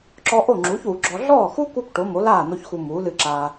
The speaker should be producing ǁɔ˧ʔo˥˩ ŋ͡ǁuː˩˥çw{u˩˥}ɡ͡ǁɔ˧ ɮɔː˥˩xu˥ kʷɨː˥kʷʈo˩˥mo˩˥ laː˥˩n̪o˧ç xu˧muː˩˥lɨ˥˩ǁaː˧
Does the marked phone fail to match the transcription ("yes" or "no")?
no